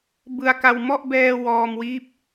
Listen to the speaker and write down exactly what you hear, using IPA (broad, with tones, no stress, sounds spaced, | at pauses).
b ɯ˧ a̯ k a˧ w m ɔ˥˩ ʔ b ɛː˧ w ɔː˧ m w iː˦˥ p̚